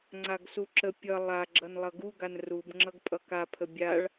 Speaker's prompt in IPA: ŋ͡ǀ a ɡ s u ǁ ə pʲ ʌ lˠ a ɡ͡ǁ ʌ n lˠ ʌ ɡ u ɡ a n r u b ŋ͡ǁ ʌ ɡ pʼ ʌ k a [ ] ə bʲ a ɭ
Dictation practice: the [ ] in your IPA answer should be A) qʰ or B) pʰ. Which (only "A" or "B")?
B